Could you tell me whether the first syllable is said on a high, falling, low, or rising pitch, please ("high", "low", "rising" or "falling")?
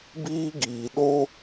high